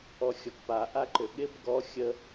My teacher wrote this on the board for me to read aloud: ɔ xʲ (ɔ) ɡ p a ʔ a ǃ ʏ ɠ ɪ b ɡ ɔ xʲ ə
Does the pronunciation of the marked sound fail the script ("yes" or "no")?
no